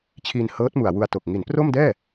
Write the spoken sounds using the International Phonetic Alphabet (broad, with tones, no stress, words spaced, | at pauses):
t͡ɕʰiː˧nhɤː˦˥t̚mu˨˩a̯ wu˧a̯to˨˩k̚ ŋi˩˦npro˥˩mdɛː˥˩